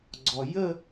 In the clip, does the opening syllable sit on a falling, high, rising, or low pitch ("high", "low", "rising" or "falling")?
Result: low